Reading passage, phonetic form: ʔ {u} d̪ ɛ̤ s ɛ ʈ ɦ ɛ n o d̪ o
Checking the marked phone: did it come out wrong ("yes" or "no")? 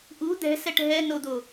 no